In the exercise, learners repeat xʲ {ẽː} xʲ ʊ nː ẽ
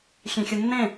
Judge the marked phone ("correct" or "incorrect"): incorrect